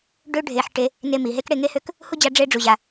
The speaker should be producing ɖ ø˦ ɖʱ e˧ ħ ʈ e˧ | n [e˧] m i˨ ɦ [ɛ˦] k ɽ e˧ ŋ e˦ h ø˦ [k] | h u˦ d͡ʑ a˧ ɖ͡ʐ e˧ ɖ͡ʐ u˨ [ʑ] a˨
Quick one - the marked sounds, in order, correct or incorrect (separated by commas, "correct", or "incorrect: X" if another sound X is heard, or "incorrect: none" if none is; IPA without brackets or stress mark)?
correct, incorrect: e˦, correct, correct